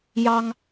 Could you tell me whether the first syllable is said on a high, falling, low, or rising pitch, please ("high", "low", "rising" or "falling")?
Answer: high